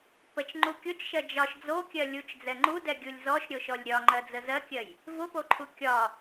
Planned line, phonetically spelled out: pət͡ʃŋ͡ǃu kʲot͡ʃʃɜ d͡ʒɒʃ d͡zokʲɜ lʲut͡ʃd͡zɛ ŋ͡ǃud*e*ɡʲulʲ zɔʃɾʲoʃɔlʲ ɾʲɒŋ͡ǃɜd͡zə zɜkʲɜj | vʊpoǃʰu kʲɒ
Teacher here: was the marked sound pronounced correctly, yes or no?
no